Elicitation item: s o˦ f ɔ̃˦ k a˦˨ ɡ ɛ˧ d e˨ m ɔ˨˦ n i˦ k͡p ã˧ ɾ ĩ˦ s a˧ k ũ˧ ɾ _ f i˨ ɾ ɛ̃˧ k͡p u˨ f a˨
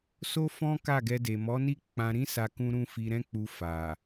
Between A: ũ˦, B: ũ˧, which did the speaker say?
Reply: B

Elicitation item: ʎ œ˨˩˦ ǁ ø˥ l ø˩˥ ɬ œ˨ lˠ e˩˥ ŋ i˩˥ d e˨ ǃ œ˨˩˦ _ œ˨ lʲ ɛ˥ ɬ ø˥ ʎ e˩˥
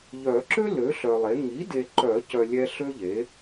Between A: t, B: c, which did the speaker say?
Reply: B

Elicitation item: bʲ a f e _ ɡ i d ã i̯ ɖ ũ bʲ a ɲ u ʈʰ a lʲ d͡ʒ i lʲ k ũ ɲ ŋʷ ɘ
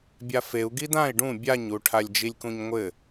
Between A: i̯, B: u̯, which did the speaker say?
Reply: B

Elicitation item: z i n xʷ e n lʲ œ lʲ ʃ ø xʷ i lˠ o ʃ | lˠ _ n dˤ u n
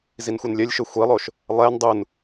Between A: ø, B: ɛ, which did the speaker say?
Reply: B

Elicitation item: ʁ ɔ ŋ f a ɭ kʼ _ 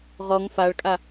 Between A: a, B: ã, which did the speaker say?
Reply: A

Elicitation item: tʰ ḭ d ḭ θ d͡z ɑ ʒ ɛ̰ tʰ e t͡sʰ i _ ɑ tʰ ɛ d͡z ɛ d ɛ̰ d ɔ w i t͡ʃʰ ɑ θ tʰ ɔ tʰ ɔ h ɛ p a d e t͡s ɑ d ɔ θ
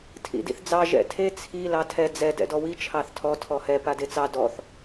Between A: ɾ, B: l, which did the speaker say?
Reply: B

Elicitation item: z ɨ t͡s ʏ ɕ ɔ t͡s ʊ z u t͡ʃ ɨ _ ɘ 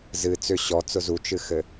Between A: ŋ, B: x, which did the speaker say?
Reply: B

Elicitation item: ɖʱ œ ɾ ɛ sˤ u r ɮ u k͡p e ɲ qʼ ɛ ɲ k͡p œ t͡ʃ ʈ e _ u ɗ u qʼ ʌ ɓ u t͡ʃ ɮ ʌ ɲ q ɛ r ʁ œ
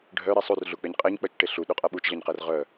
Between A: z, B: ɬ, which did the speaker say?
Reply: B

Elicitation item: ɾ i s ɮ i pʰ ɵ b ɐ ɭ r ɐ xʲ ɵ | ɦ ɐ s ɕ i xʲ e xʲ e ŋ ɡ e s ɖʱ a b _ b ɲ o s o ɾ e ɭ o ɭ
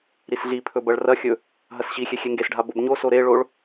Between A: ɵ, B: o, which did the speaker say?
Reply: B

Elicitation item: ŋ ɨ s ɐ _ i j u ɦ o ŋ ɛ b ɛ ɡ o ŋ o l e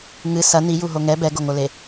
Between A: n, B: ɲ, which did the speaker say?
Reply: A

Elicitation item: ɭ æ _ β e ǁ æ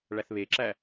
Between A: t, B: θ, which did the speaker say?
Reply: B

